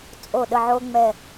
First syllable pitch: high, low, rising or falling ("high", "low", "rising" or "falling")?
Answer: falling